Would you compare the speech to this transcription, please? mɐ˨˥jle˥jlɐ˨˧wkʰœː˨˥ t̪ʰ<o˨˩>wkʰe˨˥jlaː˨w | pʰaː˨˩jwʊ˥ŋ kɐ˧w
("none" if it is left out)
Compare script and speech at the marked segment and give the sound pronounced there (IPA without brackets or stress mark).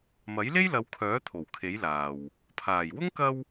o˨˩